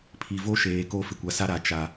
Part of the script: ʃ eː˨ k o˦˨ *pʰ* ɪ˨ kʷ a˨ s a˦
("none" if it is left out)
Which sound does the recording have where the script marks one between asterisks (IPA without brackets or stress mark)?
f